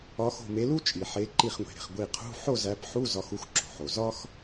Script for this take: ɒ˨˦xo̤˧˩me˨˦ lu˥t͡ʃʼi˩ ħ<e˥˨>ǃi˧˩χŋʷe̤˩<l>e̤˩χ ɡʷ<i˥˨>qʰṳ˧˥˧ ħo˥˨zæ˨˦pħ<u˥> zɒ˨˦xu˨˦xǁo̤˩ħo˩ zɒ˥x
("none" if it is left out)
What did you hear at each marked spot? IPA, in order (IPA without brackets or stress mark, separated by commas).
e˨˦, ɾ, i˧˩, u˧˥˧